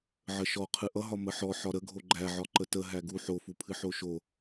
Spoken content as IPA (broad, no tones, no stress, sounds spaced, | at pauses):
ʕ ə ʃ ɔ qʰ ɨ ʔ ʌ ɦ ɒ m ə ħ ɔ ħ ɒ ɾ ə ɡʱ o ɡ͡ǃ æ ʕ ɒ ǃ ə t ə ɦ æ ɡ u ħ o f u pʰ ɨ ħ o ʃ o